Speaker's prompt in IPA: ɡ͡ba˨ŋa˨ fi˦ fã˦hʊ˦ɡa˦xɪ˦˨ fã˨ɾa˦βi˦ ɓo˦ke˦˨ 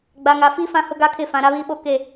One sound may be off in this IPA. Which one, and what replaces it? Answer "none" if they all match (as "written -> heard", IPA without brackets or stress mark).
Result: x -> kʰ